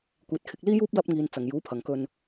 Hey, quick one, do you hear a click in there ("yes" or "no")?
no